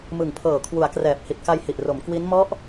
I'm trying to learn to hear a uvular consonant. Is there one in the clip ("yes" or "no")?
no